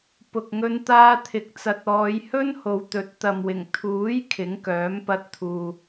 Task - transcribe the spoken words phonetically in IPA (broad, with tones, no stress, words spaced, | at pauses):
pʊ˨k̚ŋɵ˧n t̪aː˧t̪ʰɪ˨k̚ t͡sɐ˨t̚ ɔː˨˧jhɵ˥nho˨˧wt̪ɵ˨˥t̚ t̪ɐ˨mwɪ˨˩ŋ t̪ʰuː˨˥j kʰɪ˨˥ŋkœː˨˥mpɐ˧t̚t̪ʰuː˨